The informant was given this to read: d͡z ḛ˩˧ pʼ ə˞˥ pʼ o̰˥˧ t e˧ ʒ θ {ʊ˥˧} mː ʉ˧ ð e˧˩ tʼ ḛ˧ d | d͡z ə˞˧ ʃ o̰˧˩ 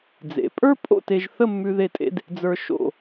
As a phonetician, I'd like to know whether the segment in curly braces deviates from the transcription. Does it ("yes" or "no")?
yes